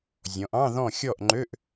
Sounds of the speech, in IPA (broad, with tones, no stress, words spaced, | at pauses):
zʲɔ̃˩˧ʔɑ̃˧˥˧ ðɔ̃˥˨ xʲɔ˥˨ʔŋ͡ǃø˧˥˧ʔ